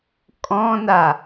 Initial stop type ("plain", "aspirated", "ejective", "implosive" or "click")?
ejective